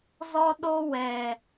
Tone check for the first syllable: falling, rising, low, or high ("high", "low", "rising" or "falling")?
high